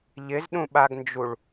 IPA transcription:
ʎ ɪ z ɗ ũ ɓ a ɡ n d͡ʒ u ɭ

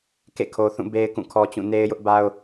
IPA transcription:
k ḛ˦˨ kʰ o˨ θ ũ˦˨ b e˦ ɪ̯ k ũ˦˨ kʰ ɔ˦ t͡ɕ ũ˦˨ n e˦ ɪ̯ j ʊ˦ ʔ b a˦ ʊ̯

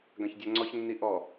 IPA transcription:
ɡ ã ç dʲ a ŋ͡ǀ ɔ ç nː i ʔ ɔ

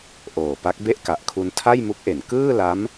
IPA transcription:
ʔ oː˨˩ p a˦˥ k̚ b e˥˩ ʔ k a˨˩ ʔ kʰ u˧ n tʰ a˥˩ j m u˦˥ k̚ ʔ e˩˦ n k ɯː˥˩ l a˦˥ m

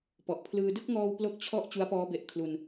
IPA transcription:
p ɔ˨˩ ʔ pʰ l ɯː˧ d ɯ˥˩ k̚ ŋ ɔː˧ w p l o˥˩ k̚ t͡ɕʰ ɔ˥˩ ʔ t͡ɕ u˦˥ a̯ p ɔː˦˥ b e˨˩ ʔ kʰ l u˧ n

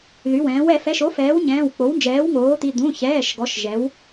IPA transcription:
ð y˩˧˩ w ɛ̃ː˩˥ w ɛ˧˩˧ f ɛ˩˧˩ ʃ o˩˥ f ɛː˩˥ w ɲ ɛ̃ː˩˧˩ w k͡p o˩˥ w n d͡ʒ ɛː˩˥ w ŋ oː˩˥ t̪ i˩˧˩ d̪ ũ˩˧˩ ç ɛː˩˧˩ ʃ ɡ ɔ˩˥ ʃ ʒ ɛ˩˥ w

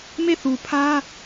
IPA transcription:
m e˦˨ θ u˨ pʰ ä˦

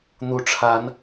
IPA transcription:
n̪ u˨˦ ʈ͡ʂʰ a˨˦ n

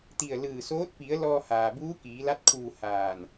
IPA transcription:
t̪ i˧˩ ə̯ l ɯː˧˩ s oː˧˥ t̚ p i˩˧ ə̯ l ɔː˧ h aː˩ b uː˧˥ k iː˩˧ l a˧˥ t̚ kʰ uː˧˩ h aː˧˩ n

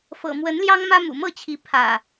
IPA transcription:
f ɤ̰˨˩ m w ə˨˦ n l j ɑ˦ ŋ m ä˦ m ṵ˨˩ m ɤ˥˨ t͡ɕʰ i˨˦ pʰ ä̰˨˩

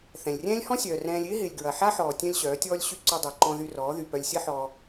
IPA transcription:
θ ɛ̃˨ lʲ rʲ ɛ̃ː˦ lʲ h ɔ̃˦ sʲ œː˨ r ɛ̃ː˧ lʲ ɪː˦ ɦ ɪː˨ lʲ ɡ ɹ ɐ˨ ħ a˦ ħ ɔː˨ tʲ œ̃˦ lʲ ɕ œː˨˦ tʲ ɔː˦ lʲ ɕ y˦ ǀ ø˧ dˤ y˨ ǃ ɔ̃˧ ð y˧ r ɔː˨˦ ð y˨ p œ˧ lʲ sʲ ɐ˦ ħ ɔ˧

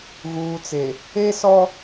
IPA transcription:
ɣ uː˨ t͡s e˨ | e˦ s ɔ˦

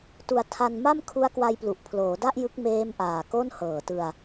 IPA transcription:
t u˧ a̯ tʰ a˧ n m a˥˩ m kʰ u˦˥ a̯ k w a˧ j p l u˨˩ ʔ pʰ l oː˩˦ d a˥˩ ʔ j ɯ˦˥ k̚ m eː˦˥ m ʔ aː˨˩ k o˥˩ n h ɤː˨˩ t ɯ˧ a̯

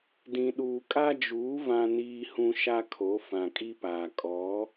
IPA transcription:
d ĩ˨ ɗ uː˨ kʼ a˦ d͡ʒ uː˨˦ v ã˨ n iː˨ h ũ˨ ʃ a˦ kʰ o˨˦ f ã˨ kʼ i˦ p aː˨ kʼ ɔ˨˦

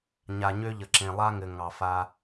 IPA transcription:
ɲ a˨ ɲ ø˦ ʎ ə˨ ǁ ẽ˨ lˠ a˦ ŋ ɘ˨ ŋ ɑ˨ f a˦

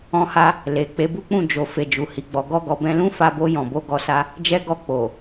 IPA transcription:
ɔ̃˦ h a˦ | l e˨ k͡p e˨˦ b u˦ k͡p ũ˦˨ d͡ʒ o˨ f e˨ d͡ʒ u˨ h i˨ ɡ͡b ɔ˨ ɡ ɔ˧ ɡ ɔ˨ b ɛ̃˧ l ũ˦ f a˧ b o˧ j ɔ̃˨ b o˧ ɡ ɔ˧ s a˦ | d͡ʒ ɛ˧ ɡ ɔ˧ k͡p o˨

